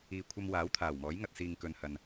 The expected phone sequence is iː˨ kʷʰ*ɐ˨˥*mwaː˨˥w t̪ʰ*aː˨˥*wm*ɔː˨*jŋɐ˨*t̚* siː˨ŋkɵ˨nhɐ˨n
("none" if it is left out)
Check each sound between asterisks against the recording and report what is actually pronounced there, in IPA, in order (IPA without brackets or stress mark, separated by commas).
ɐ˧, aː˨˩, ɔː˨˥, t̚